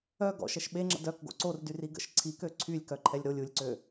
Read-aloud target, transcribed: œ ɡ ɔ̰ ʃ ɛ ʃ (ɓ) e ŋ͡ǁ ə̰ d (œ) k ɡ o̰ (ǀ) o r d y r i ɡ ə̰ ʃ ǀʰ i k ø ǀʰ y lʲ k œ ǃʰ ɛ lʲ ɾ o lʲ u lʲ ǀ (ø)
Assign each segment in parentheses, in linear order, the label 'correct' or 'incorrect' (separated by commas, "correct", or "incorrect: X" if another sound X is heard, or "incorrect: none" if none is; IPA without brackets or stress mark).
correct, correct, correct, correct